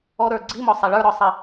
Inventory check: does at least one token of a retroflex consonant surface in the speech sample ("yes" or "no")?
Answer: yes